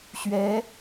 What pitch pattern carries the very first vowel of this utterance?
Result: rising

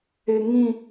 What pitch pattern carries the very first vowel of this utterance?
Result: low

